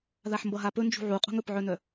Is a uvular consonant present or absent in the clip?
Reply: present